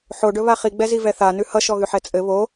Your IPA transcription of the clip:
ħ o ɖ ɵ β a χ i ɡ͡b ɛ z i v ɛ θ a n ʉ h ʌ ʃ ɔ ɣ ʉ ħ ɛ t͡sʼ ɘ β o

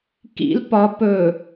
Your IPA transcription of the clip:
k ḭ l p ɒ p ɵ

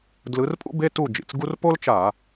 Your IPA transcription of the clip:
d l ɯ˨˦ r pʼ ṵ˥ b e˧˥˧ t u˥˨ d͡ʒ ḭ˨˩ t͡s ɡ u˥ r p o˥ l t͡ʃ a˧˩˧

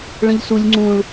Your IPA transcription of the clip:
ɭ ə̃ ʎ s u lʲ ŋ͡ǀ ũ ɭ

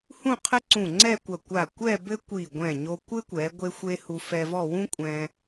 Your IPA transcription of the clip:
h ũ˥˧ qʰ ɘ˥ ǀ ũ˧˩ ŋ͡ǀ ɛ˥˧ kʷ ɐ˧˩ kʷ a˧˩ kʷ ɛ˥˧ b ɘ˥ kʷ i˧˩ ɡʷ ɛ̃˧˩ ɲ o˧ kʷ ɘ˥ kʷ ɛ˩˧ ɡʷ e˥ xʷ e˥ h u˧ f ɛ˧ v ɔ˥˧ w ũ˥ kʷʼ ɛ̃˧

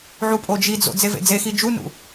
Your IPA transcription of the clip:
ʕ u pʼ o d͡ʒ i d͡z o̰ d͡z e v ḛ d͡z e x i d͡ʒ u n ṵ

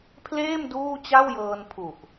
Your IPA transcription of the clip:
pʰ l eː˥˩ m d uː˥˩ t͡ɕ a˥˩ w j ɤː˧ n pʰ u˨˩ ʔ

